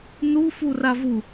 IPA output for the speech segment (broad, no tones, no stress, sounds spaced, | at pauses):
n u f u r a v u